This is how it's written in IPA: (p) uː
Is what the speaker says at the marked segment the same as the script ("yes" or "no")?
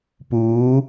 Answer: yes